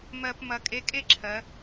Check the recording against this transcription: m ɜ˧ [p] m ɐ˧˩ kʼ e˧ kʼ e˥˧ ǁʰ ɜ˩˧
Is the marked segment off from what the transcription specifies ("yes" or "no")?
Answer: no